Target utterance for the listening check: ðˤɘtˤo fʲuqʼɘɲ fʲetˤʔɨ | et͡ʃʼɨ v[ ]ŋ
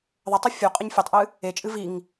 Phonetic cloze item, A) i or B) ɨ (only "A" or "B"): A